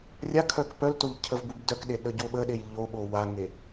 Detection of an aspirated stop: present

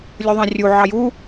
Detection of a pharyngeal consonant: present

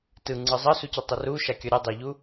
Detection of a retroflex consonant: absent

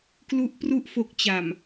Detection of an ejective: absent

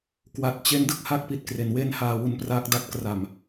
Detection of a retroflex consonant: absent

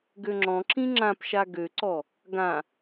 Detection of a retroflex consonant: absent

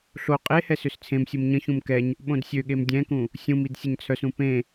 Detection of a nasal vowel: present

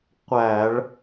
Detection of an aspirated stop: absent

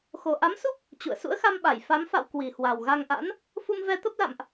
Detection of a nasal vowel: absent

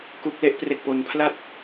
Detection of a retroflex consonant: absent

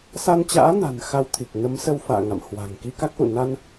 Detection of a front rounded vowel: absent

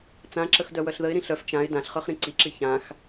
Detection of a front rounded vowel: present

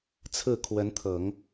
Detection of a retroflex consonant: absent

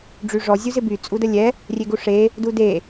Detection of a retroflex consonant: present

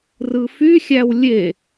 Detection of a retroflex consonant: absent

